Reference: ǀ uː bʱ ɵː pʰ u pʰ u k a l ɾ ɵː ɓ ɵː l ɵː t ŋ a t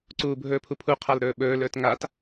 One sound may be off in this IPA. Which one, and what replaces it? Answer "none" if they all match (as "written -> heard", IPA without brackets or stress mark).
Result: k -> qʰ